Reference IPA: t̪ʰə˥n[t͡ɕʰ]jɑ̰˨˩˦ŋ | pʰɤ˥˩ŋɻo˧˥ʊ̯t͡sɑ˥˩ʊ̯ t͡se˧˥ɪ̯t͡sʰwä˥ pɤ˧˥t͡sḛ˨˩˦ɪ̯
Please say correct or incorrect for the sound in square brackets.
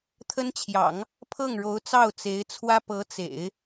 correct